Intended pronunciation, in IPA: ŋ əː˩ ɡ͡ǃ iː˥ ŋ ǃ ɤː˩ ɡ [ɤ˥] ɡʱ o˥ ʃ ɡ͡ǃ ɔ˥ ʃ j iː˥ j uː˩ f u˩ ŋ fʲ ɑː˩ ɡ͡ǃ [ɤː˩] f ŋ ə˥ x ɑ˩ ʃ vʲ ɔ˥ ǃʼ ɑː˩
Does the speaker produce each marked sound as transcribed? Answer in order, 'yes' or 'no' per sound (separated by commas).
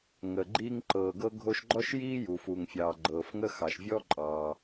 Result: yes, yes